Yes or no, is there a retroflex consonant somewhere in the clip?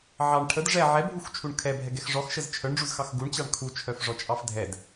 yes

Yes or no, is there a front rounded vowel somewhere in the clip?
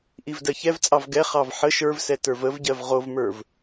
no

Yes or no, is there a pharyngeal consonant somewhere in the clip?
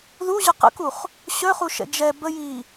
no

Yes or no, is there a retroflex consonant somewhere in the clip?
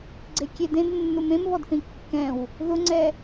no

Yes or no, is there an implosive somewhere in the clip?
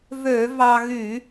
no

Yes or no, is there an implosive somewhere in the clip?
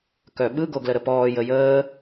yes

